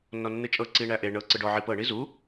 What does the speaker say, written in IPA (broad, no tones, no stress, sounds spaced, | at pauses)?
nː ɔ nː ɨ t͡ʃʼ ɤ ǀ i ɳ æ ʔ e ɳ ɤ ǀ ɯ ɖ ɔ ʕ i p ɤ ɳ i z u